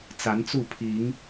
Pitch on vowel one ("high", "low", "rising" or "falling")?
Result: rising